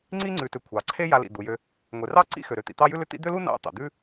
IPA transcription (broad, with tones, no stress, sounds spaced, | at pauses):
ŋ͡ǀ i˦ ŋ͡ǀ ʉ˩ t ʏ˩ kʷʰ ɑ˩ ǀʰ e˥ j a˨ l ḭ˩ d̪ u˩ j ø˨ | ŋʷ e˩ r ɑ˥ ǀ ḭ˥ x ø˩ ɾ ø˨ t̪ ḭ˨ t̪ ɑ˦ j ʉ˥ l ʏ˦ t̪ ḭ˦ d̪ ø˥ l u˥ n ɑ̰˦ t̪ ɑ̰˩ d̪ ʉ˦